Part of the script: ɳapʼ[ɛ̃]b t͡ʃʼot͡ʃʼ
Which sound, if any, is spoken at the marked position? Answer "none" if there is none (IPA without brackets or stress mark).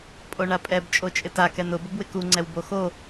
ɛ